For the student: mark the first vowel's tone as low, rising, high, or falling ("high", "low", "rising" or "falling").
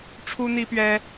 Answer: high